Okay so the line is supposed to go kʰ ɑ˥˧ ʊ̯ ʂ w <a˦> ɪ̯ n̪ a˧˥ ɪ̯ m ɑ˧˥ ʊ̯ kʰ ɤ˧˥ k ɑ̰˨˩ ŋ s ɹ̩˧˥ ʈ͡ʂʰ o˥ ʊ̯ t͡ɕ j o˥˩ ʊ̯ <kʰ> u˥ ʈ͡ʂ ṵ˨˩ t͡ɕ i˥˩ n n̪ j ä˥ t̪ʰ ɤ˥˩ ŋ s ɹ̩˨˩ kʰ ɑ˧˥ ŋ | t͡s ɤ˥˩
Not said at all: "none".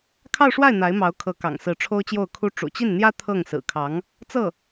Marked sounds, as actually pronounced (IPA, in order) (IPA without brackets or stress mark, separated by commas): a˥˩, kʰ